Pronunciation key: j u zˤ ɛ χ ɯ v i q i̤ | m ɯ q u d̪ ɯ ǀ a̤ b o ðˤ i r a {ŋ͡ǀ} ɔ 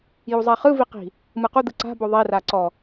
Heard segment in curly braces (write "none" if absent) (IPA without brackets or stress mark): ǀ